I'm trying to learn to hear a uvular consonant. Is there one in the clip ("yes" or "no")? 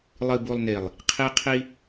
yes